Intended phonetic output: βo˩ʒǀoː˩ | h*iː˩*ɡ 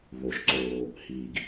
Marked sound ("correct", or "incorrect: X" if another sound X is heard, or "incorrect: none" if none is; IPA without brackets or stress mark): correct